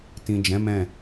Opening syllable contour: low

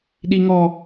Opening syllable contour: high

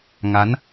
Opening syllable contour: rising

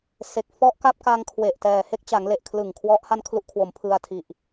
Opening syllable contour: low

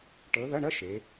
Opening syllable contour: rising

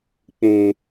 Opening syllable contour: low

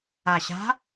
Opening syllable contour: low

